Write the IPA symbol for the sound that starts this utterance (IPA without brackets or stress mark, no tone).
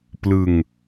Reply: p